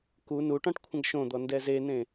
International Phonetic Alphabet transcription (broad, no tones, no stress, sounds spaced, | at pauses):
k u n u ʈ ɔ̃ ʈ kʷʰ ə̃ ɡ ʃ õ d̪ ɔ n d ɛ z e n ẽ